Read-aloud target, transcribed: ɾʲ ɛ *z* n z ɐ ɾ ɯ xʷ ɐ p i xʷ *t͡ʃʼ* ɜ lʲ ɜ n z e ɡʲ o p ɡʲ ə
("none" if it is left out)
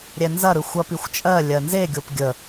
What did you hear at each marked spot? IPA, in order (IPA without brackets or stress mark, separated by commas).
none, t͡ʃʼ